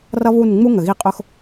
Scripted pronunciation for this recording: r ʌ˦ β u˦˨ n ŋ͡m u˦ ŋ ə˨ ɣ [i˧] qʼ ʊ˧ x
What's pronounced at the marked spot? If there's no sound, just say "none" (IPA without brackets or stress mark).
i˧